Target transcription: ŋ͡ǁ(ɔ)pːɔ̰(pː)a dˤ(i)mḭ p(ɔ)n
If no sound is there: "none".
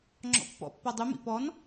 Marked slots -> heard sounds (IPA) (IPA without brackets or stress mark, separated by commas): ɔ̰, pː, y, ɔ